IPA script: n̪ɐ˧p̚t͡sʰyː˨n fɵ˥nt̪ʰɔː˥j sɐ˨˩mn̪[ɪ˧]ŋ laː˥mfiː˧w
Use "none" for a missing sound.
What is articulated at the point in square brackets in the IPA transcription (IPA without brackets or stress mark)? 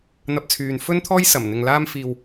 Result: ɪ˨